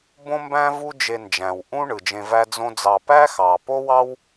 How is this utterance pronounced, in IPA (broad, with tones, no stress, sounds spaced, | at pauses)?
b õ˥ m b æ̃˥ v u˥ d͡ʒ e˧ n d͡ʒ æ̃˩ w ʔ ũ˥ ɳ ɯ˩ d͡ʒ ẽ˧ v æ˥ d͡z õ˥ d͡z ɑ˧ p æ˥ x ɑ˩ p o˥ w ɑ˥ w